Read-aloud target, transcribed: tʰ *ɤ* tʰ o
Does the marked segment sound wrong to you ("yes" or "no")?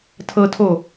no